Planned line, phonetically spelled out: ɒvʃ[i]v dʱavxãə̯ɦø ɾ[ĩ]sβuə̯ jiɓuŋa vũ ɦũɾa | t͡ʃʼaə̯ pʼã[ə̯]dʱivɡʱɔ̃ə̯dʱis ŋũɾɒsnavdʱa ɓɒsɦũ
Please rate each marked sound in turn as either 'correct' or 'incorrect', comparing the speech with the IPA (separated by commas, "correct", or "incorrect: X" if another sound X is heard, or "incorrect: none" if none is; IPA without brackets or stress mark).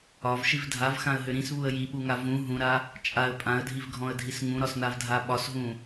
correct, correct, correct